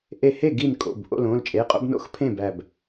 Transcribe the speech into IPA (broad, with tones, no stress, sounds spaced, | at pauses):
ʔ e˧˩ h e˥˩ ɡ i˥˩ n kʼ o̰˩˧˩ b ʔ o̰˩˧˩ l õ˩˧˩ l t͡ʃʼ e˩˧˩ qʼ o̰˦ b n o̰˥˩ x pʰ ẽ˥˩ b æ˧˩ b